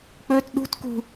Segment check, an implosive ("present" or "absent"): present